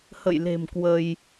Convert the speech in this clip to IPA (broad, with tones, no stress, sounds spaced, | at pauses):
h ə̰˧˨ j l e̤˨˩ m k w ə˧ j